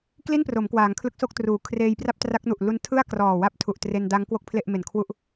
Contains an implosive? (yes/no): no